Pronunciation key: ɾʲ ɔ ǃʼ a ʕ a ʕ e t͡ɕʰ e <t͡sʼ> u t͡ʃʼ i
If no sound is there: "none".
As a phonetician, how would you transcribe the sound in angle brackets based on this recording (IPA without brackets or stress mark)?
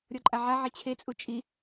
t͡sʼ